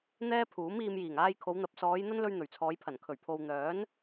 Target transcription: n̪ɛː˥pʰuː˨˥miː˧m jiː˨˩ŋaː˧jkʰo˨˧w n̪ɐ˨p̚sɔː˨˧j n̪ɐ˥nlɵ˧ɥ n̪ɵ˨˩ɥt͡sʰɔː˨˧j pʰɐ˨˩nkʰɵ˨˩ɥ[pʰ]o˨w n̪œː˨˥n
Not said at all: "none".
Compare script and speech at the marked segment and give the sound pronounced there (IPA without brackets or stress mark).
pʰ